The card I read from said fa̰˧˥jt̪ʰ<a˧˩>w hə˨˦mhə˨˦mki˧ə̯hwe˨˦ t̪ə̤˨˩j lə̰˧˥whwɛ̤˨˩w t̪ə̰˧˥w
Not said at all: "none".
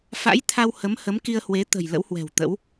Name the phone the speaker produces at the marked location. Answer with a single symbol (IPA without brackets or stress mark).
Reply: a˧